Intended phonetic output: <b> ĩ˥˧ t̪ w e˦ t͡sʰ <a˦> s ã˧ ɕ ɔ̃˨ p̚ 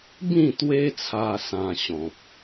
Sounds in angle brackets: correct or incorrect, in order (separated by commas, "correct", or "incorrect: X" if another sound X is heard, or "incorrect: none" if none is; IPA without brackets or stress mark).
correct, incorrect: a˧